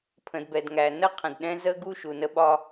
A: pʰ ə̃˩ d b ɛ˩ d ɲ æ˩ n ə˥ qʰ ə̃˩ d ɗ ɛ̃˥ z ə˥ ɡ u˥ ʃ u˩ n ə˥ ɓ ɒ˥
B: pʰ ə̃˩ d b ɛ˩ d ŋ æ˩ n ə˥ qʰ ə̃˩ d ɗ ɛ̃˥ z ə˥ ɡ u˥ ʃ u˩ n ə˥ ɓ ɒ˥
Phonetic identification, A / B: B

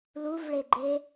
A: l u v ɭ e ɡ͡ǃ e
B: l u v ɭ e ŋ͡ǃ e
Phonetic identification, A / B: A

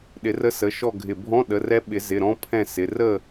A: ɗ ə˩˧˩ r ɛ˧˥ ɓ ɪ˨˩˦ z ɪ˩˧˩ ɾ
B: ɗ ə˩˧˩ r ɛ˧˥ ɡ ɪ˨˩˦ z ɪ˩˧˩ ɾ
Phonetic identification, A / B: A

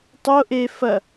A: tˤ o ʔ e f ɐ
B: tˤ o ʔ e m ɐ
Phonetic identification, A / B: A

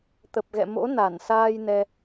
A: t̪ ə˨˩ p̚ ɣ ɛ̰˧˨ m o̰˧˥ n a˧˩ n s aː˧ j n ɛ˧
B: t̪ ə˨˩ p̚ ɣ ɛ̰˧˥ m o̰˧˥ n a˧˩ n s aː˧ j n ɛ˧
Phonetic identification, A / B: A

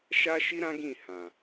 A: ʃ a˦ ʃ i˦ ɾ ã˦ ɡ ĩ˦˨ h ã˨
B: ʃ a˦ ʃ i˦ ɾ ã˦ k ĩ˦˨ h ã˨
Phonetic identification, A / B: A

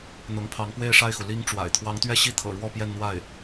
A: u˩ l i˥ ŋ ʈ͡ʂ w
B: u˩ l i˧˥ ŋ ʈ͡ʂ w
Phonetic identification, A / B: A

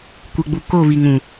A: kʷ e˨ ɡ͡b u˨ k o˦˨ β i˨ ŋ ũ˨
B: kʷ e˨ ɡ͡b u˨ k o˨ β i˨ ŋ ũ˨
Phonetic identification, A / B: A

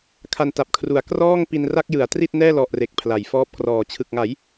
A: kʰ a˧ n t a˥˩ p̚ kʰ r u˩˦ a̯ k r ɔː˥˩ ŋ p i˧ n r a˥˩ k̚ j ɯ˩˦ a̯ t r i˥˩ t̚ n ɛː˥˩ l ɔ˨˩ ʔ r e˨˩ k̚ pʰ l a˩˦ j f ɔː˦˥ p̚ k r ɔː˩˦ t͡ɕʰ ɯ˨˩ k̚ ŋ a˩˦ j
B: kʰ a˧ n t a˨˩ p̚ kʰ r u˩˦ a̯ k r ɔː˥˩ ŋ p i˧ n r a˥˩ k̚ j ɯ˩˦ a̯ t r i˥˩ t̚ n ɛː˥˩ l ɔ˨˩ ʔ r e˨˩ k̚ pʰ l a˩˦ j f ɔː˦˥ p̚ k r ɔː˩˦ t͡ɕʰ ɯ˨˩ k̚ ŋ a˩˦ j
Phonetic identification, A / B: B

